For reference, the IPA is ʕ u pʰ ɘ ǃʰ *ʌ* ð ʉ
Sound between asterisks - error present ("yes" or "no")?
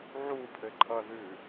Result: no